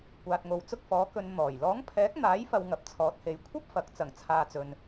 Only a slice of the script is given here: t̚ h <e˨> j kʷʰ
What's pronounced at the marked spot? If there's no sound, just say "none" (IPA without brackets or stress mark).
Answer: e˨˧